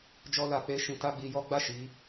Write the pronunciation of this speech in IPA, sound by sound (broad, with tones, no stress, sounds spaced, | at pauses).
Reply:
d͡ʒ ɔ˦ l a˧ k͡p e˦ ʃ ĩ˧ t a˦ ɡ͡b i˧ j ɔ˦ ɡ͡b a˦˨ ʃ i˨˦